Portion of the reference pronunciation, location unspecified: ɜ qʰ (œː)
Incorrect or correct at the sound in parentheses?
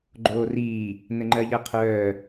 correct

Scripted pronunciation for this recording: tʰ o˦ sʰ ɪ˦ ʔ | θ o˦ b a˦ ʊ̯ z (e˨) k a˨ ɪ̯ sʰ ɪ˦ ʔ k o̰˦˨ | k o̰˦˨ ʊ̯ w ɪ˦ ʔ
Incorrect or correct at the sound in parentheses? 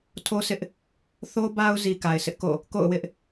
incorrect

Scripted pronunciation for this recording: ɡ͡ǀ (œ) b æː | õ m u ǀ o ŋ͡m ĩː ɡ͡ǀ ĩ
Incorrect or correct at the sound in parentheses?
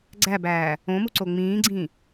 incorrect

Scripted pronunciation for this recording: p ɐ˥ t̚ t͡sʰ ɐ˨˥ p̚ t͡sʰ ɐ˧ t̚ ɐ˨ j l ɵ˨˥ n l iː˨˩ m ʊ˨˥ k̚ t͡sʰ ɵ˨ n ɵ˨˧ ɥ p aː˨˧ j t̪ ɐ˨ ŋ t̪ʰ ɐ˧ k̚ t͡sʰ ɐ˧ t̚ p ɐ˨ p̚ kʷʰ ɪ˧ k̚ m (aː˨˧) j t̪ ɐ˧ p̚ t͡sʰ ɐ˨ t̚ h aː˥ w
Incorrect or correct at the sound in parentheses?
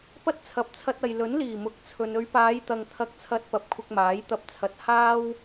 incorrect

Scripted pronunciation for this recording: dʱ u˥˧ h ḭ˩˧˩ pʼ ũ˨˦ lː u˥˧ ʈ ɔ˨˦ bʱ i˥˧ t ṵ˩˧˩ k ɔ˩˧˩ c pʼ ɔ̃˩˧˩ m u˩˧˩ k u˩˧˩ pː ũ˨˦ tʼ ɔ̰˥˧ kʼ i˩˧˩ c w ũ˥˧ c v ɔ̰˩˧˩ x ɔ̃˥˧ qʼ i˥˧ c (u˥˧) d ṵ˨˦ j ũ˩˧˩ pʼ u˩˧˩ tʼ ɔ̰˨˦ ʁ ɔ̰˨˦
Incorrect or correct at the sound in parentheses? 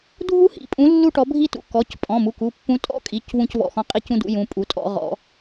incorrect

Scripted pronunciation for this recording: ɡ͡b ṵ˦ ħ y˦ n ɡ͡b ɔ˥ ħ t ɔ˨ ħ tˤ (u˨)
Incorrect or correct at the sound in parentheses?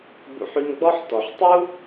incorrect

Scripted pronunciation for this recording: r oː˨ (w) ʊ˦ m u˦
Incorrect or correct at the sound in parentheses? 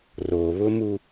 incorrect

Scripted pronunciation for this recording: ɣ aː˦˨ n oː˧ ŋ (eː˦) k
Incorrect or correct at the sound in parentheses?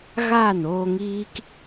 incorrect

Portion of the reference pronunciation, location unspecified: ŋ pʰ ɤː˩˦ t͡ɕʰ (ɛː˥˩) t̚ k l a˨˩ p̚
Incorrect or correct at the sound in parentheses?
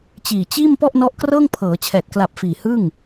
incorrect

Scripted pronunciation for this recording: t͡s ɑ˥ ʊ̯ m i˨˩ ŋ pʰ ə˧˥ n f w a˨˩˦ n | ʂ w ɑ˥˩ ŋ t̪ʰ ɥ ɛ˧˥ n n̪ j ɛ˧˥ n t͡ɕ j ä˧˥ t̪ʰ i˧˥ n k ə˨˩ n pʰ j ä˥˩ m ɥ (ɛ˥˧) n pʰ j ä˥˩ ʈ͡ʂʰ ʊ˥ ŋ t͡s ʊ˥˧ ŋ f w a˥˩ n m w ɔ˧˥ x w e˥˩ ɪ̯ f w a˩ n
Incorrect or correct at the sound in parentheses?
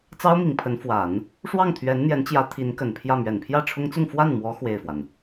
incorrect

